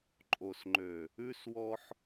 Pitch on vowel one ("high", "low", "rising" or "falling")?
low